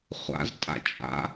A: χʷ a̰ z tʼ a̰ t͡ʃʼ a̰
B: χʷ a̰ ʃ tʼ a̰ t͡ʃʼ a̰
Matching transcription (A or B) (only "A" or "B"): A